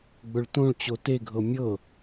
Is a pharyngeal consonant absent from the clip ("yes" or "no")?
yes